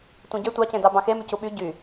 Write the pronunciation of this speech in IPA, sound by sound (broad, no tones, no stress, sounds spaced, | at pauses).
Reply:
tʷ ẽ ɟ e tʷ ɑ c ẽ d ɑ b ɑ̃ x e m y c u ɓ y ɟ y